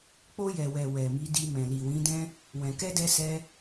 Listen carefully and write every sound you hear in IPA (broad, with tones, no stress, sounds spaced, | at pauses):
k͡p o˧ j ɛ˨ w ɛ˨ w ɛ˨ m i˨˦ d i˧ m ɛ̃˨ l i˨ w ĩ˨˦ d ɛ̃˦ | w ɛ̃˨ k ɛ˧ d ɛ˧ s ɛ˧